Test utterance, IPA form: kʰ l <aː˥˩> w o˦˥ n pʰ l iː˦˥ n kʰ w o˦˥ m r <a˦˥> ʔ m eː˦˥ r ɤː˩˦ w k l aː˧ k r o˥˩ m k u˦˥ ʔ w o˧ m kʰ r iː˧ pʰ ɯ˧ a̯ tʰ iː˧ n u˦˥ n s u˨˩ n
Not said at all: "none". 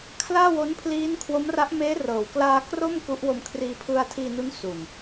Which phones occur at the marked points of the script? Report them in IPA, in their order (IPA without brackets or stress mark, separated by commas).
aː˥˩, a˦˥